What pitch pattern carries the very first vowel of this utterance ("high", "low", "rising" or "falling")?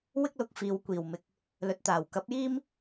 high